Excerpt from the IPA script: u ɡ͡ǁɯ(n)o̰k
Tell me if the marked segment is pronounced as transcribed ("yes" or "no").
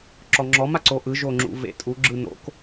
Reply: yes